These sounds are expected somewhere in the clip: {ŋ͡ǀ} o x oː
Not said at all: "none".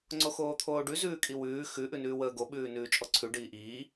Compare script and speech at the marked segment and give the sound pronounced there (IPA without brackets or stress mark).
ŋ͡ǀ